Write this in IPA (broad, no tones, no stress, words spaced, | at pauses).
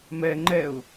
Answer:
mɛ ŋ͡ǃɛʊ̯